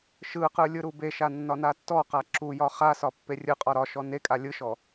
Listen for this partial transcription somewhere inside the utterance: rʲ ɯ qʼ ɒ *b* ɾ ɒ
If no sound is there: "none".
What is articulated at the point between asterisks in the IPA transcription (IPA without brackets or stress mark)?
none